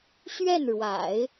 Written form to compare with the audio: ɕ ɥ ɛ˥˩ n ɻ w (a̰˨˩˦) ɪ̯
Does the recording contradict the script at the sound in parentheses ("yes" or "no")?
no